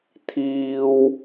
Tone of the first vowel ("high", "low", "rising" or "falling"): high